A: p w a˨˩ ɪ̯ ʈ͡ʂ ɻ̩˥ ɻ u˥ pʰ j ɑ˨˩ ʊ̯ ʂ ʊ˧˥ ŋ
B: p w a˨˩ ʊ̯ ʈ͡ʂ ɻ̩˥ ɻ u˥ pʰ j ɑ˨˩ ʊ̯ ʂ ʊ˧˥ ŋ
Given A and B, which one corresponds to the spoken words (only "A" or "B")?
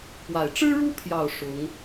A